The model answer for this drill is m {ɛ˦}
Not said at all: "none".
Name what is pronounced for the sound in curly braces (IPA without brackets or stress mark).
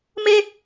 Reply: ɛ˦